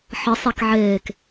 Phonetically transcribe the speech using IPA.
ħ ə sˤ i k ʕ eː k

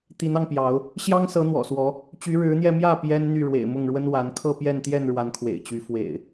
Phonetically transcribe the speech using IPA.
t̪ i˨˦ n ɑ˧ ŋ p j ɑ˨˦ ʊ̯ | ɕ j ɑ˦ ŋ s ɤ˨˦ n̪ w ɔ̰˨˩ s w ɔ˨˦ | t͡ɕ y˨˦ ɻ ɻ̩˨˦ n̪ j ɛ˧ m j ä˥˨ p j ɛ˦ n n̪ y˥˨ ɻ w ḛ˨˩ ɪ̯ m ʊ˥˨ ŋ ɻ w ə˦ n w a˨˦ n kʰ ɤ˥˨ p j ɛ˥˨ n t̪ j ɛ˥˨ n ɻ w a˨˦ n kʰ w ḛ˨˩ ɪ̯ t͡ɕ y˨˦ f w ḛ˨˩ ɪ̯

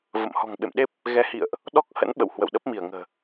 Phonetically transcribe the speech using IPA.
v ə̰˧˨ m h ɔ̤˨˩ ŋ ɓ ḛ˧˨ m ɗ e˦˥ p̚ | ɣ ɛ˨˦ h ḭ˧˨ ə̯ ʔ | ɗ ɔ˦˥ k̚ h ə̰˧˥ n ɓ ə̰˧˨ w h w ə̰˧˨ w ɗ ə˦˥ p̚ m i˧˩ ə̯ ŋ ə̤ː˨˩

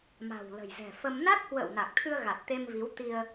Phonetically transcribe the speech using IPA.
m a̤˨˩ w l ə̤˨˩ j z ɛ̤˨˩ f ə˧ m n a˦˥ k̚ h w ə̰ː˧˨ w n a˨˩ k̚ t̪ʰ ɨ˧ ə̯ ɣ a˨˩ t̚ t̪ e˧ m v i˨˦ w t̪ i˧ ə̯

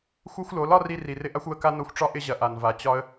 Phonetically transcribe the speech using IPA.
xʷ ʌ˦ xʷ l o˨˦ l ɒ˦ r i˧ r i˨ r ɪ˦ ʔ a˦ xʷ w ə˧ k a˦ n o˧ xʷ ʈ͡ʂ ɒ˦ ʔ ɪ˦ ʑ ɐ˨ ʔ a˨ n v a˨ t͡ɕ ɒ˦ ə̯

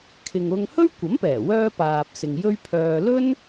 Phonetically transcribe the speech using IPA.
kʰ ɪ˨ ŋ ʊ˧ ŋ h ɵ˥ ɥ kʷ ɐ˨˥ m p ɛː˨˩ w œː˧ p aː˨ p̚ s ɪ˨ ŋ j ɵ˥ ɥ pʰ œː˧ l ɵ˥ n

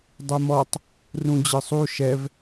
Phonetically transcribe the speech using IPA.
dˤ ɯ m ɔ tˤ | r ũ d͡ʑ ɯ sˤ u ʃ ɛ v

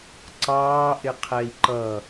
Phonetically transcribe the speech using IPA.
ǀ ɑː ʔ ɪ qʰ ɛ i̯ ǃ ʌ

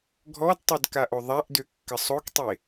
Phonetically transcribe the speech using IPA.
ɡʱ ɔ d tˤ œ d k a ʔ o ðˤ a ʔ d ø kː ə sˤ o k tˤ e

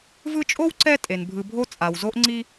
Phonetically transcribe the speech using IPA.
v ɯ˦ t͡ʃʼ o˥ w ǀ ɛ˦ tʼ e˩ n bʱ ɯ˨ bʱ o˦ t͡sʼ a˩ w z o˦ ʔ ŋ͡ǀ i˦

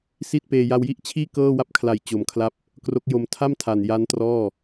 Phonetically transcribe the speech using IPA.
s i˥˩ t̚ p eː˧ j a˧ w j i˥˩ ʔ t͡ɕʰ iː˥˩ k ɤː˥˩ w a˥˩ p̚ kʰ l a˨˩ j t͡ɕ o˩˦ m kʰ l a˦˥ p̚ | k r o˦˥ k̚ j o˧ m tʰ a˥˩ m tʰ a˨˩ n j a˦˥ n t r ɔː˥˩

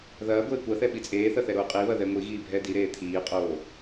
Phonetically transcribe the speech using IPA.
ð ɐː ɡʷ eː kʷ ɐ θ ɛ ɓ i t͡sʼ eː θ ɐ θ ɛ ɾ oː qʼ i β ɐ ð ɛ ŋʷ i ɣ iː bʱ ɛ d i ɾ eː t̪ʰ iː qʼ oː

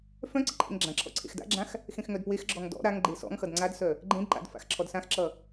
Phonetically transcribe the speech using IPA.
f œ̃ ǀ ɘ ǃʼ ḛ ŋ ɡ͡ǁ ã ǁʰ ɔ̰ ǀʰ ḛ x d a̰ ɡ͡ǁ ã x | x ẽ x ŋ œ d p w e x ɡ͡ǁ ɔ ŋ d ɔ̰ ɾ a ŋ ɡ͡ǃ e s ɔ̰ ŋ x ʌ d ŋ͡ǀ a d s œ | ɡ͡ǃ ẽ d ǃ a̰ d f a̰ x ǁʰ ɔ d s ã x ǁ ʌ

